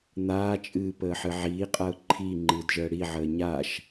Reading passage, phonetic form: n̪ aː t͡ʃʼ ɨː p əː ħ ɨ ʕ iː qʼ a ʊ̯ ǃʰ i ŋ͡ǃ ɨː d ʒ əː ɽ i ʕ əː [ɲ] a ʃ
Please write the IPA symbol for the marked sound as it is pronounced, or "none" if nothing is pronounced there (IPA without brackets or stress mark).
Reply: ɲ